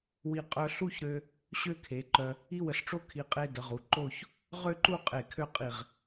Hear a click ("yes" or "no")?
yes